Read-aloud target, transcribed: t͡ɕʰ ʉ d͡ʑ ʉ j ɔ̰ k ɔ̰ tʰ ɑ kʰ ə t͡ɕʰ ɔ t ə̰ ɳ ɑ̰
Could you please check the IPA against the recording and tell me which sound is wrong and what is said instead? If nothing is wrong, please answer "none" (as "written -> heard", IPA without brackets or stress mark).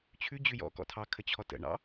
none